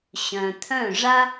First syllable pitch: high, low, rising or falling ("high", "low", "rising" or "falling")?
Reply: low